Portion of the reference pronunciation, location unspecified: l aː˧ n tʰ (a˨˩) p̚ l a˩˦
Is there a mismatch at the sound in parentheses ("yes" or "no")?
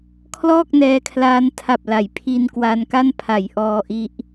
no